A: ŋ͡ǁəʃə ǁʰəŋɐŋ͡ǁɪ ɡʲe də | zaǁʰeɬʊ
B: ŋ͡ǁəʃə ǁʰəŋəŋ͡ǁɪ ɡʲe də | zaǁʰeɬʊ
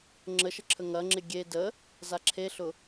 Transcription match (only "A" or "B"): A